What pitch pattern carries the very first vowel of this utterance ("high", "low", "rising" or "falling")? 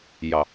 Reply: low